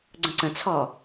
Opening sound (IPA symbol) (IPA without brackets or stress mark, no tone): ɡ͡ǀ